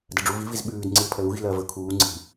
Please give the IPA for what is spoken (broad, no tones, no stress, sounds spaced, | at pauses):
d ɐ ɖ͡ʐ u v i v i z ɓ ʉː d ŋ͡ǀ i l pʰ ɐ l u ɣ i̤ l ɐː v ɵ kʰ uː ŋ͡ǀ i̤